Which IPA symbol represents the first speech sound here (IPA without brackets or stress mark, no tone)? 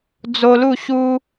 d͡z